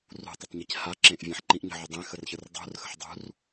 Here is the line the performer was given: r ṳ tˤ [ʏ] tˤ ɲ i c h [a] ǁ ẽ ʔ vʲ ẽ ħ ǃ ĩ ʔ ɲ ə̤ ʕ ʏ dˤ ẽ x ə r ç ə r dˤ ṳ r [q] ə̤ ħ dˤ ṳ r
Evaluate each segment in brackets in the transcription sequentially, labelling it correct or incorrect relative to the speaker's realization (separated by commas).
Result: correct, correct, incorrect